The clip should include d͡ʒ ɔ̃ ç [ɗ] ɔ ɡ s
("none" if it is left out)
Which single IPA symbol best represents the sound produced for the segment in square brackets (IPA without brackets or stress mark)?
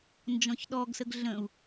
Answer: ɗ